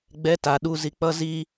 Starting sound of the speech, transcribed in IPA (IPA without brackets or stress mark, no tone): ɡ͡b